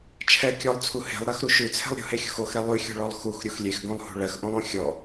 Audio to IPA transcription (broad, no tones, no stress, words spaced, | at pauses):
t͡ʃʰɛ kʲɔlˠt͡sʰu he̤lˠɾɜxɾu ʃʉt͡sʰɛ̤lˠ ɾʲṳhexʲo̤x oxɾɛ lˠʉxʲo̤ɭɔlˠ xuxɾʲux lʲexɡõlˠhṳ ɭɜxʔõlˠõ xʲɔ